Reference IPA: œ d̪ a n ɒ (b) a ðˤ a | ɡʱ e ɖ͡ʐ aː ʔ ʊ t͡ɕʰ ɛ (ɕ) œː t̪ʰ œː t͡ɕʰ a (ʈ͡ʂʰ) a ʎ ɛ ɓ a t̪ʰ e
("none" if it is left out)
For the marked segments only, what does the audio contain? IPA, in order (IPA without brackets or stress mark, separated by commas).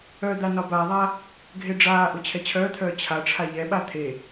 b, t͡ɕʰ, ʈ͡ʂʰ